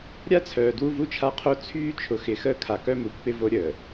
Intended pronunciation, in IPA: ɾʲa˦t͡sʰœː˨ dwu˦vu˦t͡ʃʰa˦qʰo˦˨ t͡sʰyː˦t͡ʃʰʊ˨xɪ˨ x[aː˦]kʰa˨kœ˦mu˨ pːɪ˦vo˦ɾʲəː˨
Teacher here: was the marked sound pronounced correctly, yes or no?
no